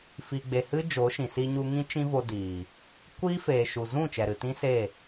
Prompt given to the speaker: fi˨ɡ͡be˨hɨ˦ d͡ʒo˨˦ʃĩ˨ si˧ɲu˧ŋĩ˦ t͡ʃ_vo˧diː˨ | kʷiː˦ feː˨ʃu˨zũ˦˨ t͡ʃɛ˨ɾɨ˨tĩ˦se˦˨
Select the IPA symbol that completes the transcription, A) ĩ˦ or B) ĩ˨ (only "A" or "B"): A